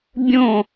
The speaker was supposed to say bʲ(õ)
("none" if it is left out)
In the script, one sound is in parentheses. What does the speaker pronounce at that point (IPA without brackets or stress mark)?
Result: õ